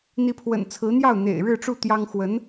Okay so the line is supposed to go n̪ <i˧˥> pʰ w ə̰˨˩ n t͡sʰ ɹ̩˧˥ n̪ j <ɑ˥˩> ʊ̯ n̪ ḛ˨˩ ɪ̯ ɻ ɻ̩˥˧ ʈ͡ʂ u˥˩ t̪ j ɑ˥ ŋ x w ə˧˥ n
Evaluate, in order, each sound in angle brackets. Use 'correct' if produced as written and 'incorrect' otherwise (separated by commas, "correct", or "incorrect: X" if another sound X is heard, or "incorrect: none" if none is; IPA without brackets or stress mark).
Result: correct, correct